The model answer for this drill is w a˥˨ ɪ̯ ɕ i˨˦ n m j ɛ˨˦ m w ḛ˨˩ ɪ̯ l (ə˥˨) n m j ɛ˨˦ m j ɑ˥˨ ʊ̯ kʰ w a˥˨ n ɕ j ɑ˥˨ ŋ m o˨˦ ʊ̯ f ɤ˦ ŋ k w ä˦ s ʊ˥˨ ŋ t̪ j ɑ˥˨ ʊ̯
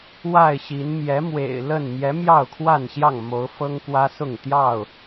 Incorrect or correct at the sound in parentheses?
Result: correct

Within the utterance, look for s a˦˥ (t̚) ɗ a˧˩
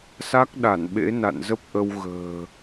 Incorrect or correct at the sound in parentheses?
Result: incorrect: k̚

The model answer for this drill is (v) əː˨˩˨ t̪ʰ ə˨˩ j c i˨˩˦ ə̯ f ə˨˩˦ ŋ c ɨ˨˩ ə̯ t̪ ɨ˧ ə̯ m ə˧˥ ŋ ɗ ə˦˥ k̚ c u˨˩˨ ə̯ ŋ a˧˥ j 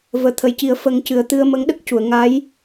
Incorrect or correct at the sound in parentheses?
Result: correct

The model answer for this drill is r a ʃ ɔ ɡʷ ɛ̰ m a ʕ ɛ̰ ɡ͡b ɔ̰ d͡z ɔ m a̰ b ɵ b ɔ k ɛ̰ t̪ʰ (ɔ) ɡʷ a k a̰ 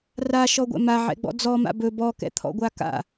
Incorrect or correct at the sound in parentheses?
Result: incorrect: ɔ̰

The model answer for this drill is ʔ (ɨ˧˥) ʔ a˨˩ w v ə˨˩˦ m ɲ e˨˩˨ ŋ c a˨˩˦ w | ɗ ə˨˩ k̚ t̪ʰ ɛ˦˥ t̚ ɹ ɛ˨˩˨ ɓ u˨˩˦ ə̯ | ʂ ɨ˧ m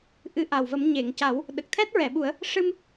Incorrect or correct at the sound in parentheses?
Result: correct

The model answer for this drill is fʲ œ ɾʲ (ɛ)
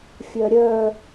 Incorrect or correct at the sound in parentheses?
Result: incorrect: œ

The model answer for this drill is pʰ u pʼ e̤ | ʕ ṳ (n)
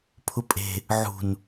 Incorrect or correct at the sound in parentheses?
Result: correct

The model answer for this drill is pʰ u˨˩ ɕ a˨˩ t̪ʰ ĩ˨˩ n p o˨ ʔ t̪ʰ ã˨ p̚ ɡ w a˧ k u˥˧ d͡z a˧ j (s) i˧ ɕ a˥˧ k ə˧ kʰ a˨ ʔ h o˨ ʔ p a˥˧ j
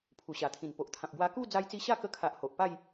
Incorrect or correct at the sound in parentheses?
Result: incorrect: t͡s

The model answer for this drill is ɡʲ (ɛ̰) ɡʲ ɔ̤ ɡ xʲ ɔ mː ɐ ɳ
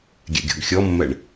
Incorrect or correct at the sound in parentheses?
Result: correct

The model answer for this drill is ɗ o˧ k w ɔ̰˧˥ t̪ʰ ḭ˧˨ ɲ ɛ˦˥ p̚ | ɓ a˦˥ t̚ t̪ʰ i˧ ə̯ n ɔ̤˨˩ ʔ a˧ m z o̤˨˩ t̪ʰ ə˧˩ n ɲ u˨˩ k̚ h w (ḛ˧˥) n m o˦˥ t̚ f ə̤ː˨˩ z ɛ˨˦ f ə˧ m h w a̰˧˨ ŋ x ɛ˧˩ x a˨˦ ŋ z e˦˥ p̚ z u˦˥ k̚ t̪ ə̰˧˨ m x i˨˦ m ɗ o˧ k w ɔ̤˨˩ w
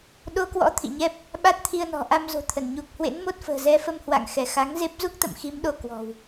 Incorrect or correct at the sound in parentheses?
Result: correct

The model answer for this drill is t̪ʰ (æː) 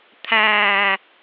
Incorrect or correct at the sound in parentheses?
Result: correct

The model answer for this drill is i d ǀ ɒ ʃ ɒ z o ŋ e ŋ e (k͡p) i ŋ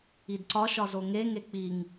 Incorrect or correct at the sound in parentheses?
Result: correct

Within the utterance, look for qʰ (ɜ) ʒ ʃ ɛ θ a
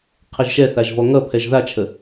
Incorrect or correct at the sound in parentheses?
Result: correct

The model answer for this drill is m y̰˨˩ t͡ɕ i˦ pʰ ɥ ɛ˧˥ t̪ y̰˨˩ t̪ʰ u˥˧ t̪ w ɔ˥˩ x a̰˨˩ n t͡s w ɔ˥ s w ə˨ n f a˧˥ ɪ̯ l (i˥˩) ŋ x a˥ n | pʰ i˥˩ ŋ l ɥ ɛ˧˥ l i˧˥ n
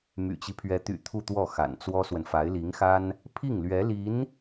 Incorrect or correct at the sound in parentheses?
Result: incorrect: i˧˥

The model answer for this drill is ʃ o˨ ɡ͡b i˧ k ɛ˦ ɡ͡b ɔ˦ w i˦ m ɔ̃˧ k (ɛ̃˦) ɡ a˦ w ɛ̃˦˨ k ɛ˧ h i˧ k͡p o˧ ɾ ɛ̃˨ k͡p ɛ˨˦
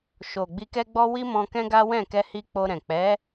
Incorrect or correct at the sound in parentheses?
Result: correct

